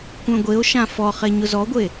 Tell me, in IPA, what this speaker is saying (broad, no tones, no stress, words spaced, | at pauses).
kʷœ̃ɡʷeo̯ʃã fɔχe ɲʊzɔɡʷe